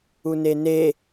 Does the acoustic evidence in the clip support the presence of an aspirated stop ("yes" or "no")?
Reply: no